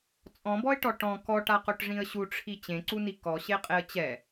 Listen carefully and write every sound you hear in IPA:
t͡sʼ ɔ̃ b ɔ ɪ̯ ʈ ɔ ʈ ɔ̃ k ɔ ʈ a q o ʈ ʐ ĩ ə̯ ɕ u ʈ͡ʂʰ i t͡ɕ ẽ ǀ u n i k ɔ ɕ e qʼ e ə̯ t͡ɕ ɛ

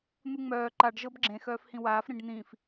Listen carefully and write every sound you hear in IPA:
n̪ u ŋ͡m œː ǃ a ɖ ʒ ɤ b ɡ͡ǁ ẽ x œː f h ĩ w aː f ɾ ĩ ɖ n̪ ĩ f

